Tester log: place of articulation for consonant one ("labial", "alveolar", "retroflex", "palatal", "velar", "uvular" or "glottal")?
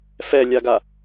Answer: labial